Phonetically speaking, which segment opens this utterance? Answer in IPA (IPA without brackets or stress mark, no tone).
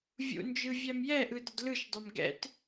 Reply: vʲ